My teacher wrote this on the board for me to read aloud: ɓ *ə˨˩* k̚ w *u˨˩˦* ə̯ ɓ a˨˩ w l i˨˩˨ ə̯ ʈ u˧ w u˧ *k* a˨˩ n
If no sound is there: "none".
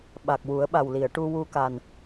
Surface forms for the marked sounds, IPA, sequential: a˨˩, u˨˩˦, k

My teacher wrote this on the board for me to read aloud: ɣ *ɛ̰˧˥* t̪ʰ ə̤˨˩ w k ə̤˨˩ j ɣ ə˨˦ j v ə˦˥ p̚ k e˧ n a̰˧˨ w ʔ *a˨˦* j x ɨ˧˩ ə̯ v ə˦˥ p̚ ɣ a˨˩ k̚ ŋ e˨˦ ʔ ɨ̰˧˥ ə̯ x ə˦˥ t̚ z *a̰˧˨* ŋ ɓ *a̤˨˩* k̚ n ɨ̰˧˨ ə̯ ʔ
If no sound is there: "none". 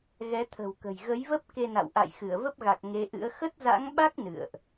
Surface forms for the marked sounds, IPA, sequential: ɛ˨˦, a̰˧˨, a̰˧˥, a˦˥

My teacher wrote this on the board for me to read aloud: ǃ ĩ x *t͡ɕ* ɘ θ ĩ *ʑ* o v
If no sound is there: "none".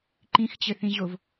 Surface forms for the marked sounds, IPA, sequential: t͡ɕ, ʑ

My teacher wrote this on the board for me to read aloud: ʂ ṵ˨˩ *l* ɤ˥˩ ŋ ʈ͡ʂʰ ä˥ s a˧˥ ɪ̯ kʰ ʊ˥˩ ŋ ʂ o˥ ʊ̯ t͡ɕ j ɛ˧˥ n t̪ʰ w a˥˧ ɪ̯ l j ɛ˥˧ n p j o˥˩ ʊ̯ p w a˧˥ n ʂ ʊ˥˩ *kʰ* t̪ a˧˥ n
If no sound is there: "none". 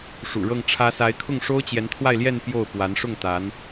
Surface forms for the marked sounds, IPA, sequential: ɻ, ŋ

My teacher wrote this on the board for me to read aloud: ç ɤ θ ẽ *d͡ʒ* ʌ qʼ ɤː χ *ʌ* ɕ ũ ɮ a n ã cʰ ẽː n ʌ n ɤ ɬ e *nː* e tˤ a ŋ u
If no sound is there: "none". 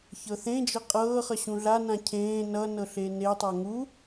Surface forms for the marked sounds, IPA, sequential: d͡ʒ, ʌ, n

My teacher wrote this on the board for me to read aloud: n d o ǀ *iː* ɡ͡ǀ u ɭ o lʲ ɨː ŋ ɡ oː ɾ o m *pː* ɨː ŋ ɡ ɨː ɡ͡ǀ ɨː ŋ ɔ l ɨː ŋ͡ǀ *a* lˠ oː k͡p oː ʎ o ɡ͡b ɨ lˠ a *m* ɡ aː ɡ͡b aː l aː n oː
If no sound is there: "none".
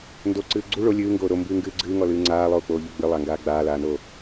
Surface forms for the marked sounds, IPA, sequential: ɨː, b, aː, ŋ

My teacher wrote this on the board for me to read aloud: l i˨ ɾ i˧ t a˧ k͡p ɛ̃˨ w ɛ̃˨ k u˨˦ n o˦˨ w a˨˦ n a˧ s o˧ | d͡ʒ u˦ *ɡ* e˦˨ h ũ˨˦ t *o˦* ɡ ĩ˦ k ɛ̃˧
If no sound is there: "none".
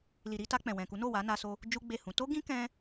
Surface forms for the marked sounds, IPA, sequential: ɡ͡b, o˦

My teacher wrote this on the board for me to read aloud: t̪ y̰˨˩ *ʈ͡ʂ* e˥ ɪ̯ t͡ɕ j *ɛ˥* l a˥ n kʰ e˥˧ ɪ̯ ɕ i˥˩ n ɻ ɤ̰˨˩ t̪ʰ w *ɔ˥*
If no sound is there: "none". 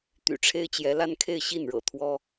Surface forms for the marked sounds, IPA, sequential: ʈ͡ʂʰ, ɛ˧˥, ɔ˥

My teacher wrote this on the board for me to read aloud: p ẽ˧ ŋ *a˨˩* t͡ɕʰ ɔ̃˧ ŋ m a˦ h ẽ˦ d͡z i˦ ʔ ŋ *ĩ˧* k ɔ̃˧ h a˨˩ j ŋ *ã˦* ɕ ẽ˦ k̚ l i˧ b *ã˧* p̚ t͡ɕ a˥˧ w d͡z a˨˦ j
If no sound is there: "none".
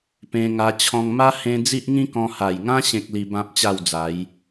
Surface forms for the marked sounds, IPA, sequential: a˧, ĩ˦, ã˦, ã˦

